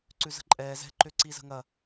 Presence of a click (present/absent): present